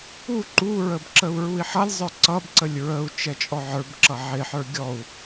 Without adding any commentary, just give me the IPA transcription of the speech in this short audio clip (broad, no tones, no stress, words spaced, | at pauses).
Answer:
u ǃuɹəb ǁəu̯ɹui̯ħʌlʲzˤə˞ ǀʌbǀəlʲ ɹəu̯ t͡ʃɛt͡ʃʼɔʕə˞bǁʌ ʕɪħə˞ ɡʲɔu̯